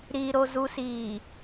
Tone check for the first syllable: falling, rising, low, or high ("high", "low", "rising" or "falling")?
low